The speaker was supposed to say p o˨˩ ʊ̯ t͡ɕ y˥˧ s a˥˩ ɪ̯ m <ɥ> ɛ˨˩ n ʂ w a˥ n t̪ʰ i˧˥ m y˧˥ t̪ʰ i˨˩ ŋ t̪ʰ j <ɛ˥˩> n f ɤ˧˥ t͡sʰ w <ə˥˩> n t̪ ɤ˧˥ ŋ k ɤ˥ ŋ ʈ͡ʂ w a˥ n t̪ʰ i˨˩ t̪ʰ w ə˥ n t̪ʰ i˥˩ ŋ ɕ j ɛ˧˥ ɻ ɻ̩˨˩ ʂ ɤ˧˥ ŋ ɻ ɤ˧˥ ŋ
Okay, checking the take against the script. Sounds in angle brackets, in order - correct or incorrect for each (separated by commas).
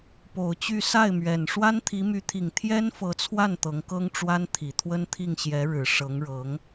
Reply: correct, incorrect, incorrect